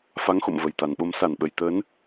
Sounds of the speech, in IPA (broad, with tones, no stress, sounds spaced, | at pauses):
f a˨˦ ŋ x o̰˧˨ m v ə˨˩ j t̪ a˨˩ n ɓ o˨˦ m s a˧˩ n ɓ ə˨˩ j t̪ əː˨˦ n